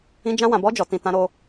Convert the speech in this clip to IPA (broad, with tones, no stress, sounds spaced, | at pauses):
ĩ˧ d͡ʒ ã˧ w ã˨ b ɔ˧ d͡ʒ ɔ˨ t ĩ˨ t ã˧ ɾ o˧